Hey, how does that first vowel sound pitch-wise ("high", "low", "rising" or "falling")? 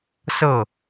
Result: falling